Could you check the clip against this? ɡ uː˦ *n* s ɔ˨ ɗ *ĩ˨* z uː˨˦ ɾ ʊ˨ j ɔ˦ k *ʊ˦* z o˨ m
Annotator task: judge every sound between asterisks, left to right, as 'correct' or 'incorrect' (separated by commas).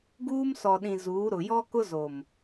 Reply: incorrect, correct, correct